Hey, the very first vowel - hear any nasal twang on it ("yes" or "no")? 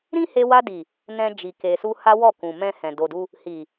yes